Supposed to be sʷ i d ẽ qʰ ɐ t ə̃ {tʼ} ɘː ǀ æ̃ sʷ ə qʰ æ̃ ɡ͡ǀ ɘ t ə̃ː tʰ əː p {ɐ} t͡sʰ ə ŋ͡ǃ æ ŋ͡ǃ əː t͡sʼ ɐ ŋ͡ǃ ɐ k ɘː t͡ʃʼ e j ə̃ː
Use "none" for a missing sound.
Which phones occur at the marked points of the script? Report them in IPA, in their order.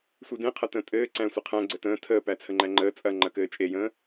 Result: tʼ, æ

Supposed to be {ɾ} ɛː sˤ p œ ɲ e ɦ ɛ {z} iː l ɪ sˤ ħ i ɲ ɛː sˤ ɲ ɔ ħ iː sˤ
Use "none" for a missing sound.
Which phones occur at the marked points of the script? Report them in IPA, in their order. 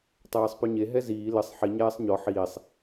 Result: tˤ, z

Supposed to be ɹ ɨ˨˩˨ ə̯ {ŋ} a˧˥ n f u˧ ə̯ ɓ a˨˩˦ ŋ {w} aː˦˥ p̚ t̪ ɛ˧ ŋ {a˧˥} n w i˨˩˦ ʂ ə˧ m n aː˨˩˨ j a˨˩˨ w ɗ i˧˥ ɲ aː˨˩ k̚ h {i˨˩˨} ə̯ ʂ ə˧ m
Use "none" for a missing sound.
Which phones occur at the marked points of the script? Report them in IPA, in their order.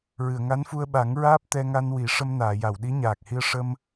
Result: ŋ, ɹ, a˧, i˧

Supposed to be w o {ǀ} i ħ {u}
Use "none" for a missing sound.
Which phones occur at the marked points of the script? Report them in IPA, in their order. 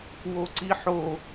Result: ǀ, o

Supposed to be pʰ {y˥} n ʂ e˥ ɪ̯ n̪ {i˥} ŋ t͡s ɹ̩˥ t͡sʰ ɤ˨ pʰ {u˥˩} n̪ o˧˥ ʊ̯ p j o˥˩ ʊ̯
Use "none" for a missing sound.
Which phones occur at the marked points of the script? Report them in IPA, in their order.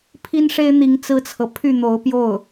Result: i˥, i˧˥, y˥˩

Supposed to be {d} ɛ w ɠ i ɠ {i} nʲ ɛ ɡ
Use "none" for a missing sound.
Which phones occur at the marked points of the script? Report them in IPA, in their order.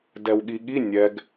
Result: d, i

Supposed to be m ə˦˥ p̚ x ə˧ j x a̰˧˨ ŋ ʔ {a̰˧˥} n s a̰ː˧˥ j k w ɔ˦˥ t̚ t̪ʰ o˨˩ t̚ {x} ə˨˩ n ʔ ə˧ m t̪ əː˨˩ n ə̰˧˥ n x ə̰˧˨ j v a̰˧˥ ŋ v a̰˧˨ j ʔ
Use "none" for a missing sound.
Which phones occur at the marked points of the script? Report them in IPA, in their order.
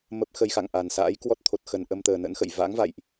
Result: a˨˩, x

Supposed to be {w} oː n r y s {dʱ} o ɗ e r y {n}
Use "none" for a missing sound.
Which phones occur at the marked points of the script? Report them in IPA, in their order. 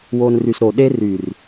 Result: w, ɾ, r

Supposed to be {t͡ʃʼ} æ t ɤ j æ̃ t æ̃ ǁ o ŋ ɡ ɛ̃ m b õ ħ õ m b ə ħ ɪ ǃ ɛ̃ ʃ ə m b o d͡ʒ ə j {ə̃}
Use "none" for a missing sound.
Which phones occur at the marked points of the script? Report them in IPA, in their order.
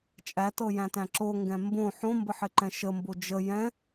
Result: t͡ʃʼ, ɛ̃

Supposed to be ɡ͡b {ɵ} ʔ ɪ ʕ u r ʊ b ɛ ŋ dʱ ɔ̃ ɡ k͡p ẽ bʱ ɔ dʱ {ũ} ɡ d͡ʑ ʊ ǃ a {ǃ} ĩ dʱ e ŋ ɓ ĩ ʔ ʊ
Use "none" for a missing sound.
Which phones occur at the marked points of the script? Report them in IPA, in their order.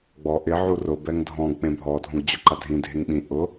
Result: ɔ, õ, dʱ

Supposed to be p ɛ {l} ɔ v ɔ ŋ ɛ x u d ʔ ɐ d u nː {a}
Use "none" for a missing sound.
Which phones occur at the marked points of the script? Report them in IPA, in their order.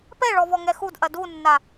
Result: ɭ, a

